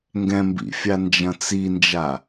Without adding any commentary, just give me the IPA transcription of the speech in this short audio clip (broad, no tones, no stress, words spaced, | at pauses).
ŋɡɛ̃mbḭ fʲand͡ʒɐ̃t͡sind͡ʒa